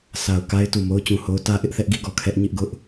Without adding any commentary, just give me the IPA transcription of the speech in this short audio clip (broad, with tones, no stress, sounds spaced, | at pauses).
sʰ a˨ ʊ̯ k a˦ ɪ̯ t u˨ m o˦ ʊ̯ t͡ɕ ũ˨ h o˦ ʊ̯ t ä˦ ʔ ɪ˦ ʔ θ ɛ˦ ʔ ɡ i˦˨ ɡ ɔ˦˨ kʰ ɛ˦ ʔ ɲ ɪ˦ ʔ ɡ ʊ˦ ʔ